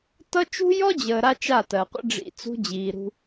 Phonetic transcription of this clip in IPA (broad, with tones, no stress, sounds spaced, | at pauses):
t ʌ˦ t͡ʃ ṳ˦ j ɔ˦ d͡ʑ əː˨ ɾ a˦ t͡ʃ a˦˨ t ɜ˨ qʷ ə̰˦ ɖ͡ʐ ḭ˨ t͡s ṳ˦ d͡ʑ iː˨ ɾ ṳ˦